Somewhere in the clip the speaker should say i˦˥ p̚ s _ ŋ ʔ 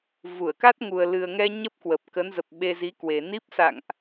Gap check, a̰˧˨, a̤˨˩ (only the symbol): a̰˧˨